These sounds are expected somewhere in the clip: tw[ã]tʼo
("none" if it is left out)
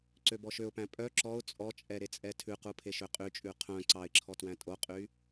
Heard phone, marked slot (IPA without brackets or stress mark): æ̃